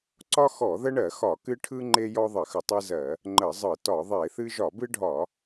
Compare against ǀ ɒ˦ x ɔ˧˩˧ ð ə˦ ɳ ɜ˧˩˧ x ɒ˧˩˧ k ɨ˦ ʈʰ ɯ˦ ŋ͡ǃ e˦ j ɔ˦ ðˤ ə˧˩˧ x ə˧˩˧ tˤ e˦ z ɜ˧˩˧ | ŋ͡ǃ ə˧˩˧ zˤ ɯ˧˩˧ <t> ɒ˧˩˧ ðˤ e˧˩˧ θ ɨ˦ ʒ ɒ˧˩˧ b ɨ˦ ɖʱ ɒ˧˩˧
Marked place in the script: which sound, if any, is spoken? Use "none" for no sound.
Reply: t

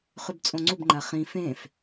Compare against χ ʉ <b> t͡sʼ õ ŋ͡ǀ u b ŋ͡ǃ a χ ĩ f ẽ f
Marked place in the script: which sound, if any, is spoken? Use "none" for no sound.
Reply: b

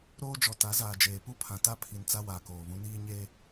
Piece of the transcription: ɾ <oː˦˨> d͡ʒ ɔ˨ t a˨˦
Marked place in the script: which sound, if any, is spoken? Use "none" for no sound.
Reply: oː˦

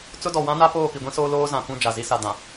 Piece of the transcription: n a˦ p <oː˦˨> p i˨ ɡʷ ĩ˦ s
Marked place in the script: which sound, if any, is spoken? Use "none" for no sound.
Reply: oː˦˨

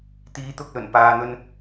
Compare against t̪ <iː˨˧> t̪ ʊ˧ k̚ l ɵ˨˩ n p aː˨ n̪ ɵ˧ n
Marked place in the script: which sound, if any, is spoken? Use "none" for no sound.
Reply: iː˨˧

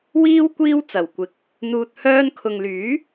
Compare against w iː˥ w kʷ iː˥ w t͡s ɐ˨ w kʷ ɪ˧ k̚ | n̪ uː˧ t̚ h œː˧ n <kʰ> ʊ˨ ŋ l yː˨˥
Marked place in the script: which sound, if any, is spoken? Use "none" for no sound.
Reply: kʰ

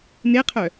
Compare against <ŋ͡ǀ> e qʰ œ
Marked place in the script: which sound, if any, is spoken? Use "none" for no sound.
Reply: n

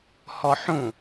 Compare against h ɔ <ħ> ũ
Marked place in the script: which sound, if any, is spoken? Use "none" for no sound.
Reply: ħ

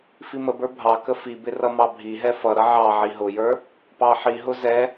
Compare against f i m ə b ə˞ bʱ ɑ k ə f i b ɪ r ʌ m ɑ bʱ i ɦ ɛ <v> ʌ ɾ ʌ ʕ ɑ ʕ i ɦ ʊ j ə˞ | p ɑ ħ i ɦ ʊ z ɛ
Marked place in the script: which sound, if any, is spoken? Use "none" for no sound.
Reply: f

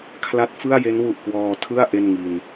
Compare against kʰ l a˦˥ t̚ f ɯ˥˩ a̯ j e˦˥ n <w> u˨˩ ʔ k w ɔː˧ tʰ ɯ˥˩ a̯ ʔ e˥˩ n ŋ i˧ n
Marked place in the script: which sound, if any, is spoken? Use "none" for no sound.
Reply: w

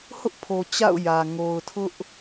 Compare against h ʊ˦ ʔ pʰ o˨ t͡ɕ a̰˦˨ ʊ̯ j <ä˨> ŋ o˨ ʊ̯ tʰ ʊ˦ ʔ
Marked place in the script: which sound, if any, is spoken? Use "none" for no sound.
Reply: ä˨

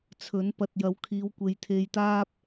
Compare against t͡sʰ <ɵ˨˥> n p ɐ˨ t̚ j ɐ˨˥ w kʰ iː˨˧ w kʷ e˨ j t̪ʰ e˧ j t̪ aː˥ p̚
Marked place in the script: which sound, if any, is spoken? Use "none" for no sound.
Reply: ɵ˨˥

